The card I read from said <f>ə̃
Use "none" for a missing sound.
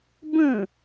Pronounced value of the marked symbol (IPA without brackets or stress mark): b